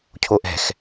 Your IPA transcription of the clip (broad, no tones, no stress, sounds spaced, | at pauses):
cʰ o ʔ ɛ̤ x